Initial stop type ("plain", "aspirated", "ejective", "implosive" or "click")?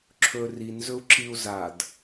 click